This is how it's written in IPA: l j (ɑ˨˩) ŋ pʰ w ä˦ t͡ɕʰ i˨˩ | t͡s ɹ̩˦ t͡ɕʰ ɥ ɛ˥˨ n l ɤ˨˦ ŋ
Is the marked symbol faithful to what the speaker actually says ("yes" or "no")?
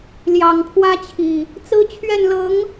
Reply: yes